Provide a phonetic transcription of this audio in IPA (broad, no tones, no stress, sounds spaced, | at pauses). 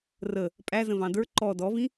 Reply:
r ə | pʼ æ z ə̃ v ɑ̃ d ə˞ ǃ ɔ d ɔ v ĩ